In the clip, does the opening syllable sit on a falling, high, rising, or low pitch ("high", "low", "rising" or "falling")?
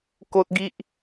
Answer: high